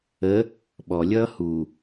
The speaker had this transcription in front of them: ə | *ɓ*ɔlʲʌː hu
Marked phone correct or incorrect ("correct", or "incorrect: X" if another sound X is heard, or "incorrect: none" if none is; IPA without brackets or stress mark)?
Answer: correct